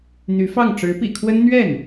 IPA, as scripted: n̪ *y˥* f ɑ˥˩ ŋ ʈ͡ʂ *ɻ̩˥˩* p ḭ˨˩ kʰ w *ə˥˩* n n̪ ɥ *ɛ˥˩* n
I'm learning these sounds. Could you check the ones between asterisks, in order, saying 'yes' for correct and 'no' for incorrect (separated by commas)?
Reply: no, no, no, yes